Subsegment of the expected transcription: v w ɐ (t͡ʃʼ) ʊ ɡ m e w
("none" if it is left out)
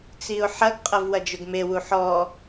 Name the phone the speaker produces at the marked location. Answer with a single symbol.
d͡ʒ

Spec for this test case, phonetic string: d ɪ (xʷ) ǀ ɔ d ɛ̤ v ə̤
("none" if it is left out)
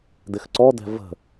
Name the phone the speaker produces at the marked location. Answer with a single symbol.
x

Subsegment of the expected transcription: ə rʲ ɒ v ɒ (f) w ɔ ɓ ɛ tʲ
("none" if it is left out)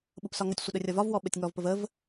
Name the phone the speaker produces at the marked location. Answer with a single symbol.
v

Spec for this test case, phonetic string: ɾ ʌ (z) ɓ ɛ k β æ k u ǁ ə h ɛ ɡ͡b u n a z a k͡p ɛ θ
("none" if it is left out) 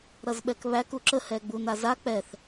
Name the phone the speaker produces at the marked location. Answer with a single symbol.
z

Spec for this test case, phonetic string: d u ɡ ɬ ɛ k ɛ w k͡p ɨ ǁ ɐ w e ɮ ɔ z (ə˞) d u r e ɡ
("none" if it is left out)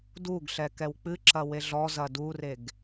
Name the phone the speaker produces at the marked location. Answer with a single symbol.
ɐ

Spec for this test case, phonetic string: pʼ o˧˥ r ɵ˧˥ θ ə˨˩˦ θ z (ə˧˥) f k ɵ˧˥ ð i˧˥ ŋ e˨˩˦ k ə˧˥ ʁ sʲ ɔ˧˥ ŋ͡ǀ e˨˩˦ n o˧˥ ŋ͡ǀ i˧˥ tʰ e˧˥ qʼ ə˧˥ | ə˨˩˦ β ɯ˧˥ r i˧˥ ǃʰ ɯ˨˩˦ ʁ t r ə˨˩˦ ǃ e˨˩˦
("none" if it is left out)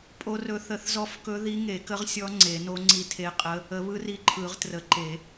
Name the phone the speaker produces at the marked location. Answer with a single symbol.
ɔ˧˥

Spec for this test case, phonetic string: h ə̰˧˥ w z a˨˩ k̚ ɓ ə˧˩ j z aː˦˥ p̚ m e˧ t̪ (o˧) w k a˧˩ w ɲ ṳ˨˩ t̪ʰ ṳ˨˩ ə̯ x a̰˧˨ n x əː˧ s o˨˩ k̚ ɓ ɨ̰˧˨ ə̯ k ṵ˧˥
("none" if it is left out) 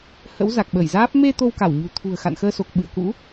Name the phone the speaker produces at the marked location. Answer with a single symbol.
o˧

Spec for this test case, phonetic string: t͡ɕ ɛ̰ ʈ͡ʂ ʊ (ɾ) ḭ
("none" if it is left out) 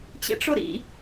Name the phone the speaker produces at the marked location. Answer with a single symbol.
ɾ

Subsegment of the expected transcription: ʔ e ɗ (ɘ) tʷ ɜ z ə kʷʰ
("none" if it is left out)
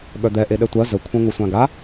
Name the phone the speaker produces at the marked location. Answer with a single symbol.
ɛ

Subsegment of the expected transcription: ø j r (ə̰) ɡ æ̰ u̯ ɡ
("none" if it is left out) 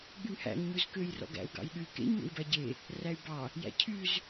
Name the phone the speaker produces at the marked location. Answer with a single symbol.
ɔ̰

